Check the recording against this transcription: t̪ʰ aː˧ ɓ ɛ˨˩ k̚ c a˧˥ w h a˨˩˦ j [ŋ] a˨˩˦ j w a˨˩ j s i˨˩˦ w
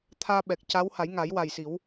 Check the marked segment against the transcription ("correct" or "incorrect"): correct